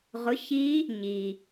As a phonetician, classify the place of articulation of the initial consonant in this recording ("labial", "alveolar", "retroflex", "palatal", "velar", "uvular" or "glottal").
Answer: uvular